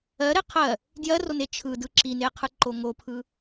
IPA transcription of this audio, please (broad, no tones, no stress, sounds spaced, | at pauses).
ɜ ɾ e qʰ ɜ | d j ɜ r o n e t͡ʃʰ ɯ d ɯ ǁ i n e qʰ ɯ ǃ o ŋ o pʰ ɯ